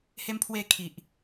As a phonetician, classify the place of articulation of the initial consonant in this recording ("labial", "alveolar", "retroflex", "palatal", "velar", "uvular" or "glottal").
glottal